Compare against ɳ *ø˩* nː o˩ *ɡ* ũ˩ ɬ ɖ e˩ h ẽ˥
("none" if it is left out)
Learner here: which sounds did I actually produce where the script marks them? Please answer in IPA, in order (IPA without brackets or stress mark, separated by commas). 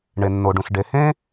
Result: e˩, ɖ